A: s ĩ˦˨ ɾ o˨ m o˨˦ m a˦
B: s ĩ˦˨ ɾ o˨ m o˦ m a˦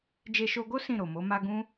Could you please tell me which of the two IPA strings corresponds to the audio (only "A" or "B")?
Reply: A